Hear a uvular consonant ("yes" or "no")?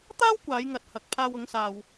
no